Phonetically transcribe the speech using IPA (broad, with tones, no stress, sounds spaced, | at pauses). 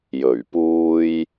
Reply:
j ɵ˨˩ ɥ p uː˧ j